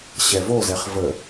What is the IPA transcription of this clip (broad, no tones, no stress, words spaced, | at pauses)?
ɕɛvozɛχ və